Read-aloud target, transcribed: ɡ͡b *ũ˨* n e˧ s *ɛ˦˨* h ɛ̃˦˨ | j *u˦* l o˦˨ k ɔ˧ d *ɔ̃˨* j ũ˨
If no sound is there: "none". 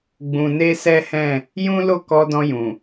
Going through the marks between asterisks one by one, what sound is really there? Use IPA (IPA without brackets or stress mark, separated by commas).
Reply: ũ˨, ɛ˦, ũ˦, ɔ̃˧